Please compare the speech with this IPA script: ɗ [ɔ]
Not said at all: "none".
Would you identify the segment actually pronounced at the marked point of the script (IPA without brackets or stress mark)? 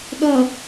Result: ʌ